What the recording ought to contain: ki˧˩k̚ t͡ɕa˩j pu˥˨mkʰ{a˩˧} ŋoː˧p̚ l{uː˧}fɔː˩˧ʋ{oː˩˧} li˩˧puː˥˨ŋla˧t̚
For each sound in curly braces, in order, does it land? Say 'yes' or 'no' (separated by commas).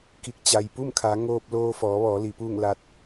yes, no, no